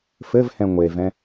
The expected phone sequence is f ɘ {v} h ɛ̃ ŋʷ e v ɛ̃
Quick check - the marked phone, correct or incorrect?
correct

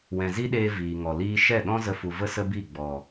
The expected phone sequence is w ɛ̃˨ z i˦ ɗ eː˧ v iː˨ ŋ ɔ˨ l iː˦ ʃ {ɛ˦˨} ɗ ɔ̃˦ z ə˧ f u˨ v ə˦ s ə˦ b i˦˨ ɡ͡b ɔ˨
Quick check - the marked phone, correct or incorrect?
correct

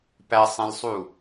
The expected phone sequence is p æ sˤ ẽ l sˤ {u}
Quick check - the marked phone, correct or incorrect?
correct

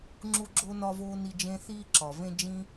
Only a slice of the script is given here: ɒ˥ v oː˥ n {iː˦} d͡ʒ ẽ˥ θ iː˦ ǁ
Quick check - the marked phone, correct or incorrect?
incorrect: i˦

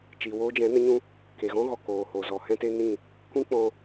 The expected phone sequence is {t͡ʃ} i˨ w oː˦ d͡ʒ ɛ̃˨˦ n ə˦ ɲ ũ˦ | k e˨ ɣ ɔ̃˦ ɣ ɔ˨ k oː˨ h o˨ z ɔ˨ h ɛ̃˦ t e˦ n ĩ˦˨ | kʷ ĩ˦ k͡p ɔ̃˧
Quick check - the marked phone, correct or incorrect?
correct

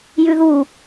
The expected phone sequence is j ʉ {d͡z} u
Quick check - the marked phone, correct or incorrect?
incorrect: ð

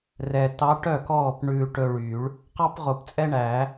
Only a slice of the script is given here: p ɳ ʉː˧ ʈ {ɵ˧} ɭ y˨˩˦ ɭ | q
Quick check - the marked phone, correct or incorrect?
correct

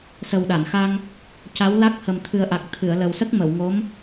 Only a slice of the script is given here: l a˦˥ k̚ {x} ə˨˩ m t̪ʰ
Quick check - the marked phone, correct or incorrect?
incorrect: h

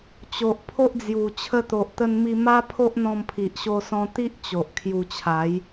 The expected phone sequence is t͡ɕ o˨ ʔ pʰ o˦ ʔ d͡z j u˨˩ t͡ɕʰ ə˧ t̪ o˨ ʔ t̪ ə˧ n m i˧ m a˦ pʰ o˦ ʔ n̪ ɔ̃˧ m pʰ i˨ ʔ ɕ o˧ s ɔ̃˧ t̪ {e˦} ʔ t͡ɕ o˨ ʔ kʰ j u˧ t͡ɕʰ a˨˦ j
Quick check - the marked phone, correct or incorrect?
incorrect: i˦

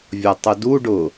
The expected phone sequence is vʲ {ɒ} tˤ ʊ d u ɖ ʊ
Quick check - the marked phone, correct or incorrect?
correct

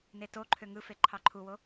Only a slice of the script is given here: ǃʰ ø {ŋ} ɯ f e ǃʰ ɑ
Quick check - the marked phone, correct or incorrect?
correct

